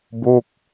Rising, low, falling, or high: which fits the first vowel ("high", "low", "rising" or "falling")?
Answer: falling